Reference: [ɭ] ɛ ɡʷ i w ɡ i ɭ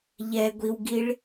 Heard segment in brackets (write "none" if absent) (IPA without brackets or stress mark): ʎ